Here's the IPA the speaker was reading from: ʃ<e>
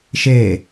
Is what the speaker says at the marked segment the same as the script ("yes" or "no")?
yes